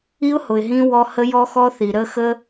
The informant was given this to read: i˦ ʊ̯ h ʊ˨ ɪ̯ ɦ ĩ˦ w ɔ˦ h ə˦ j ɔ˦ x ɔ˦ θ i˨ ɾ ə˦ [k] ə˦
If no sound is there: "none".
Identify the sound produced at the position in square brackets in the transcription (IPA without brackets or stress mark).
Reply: x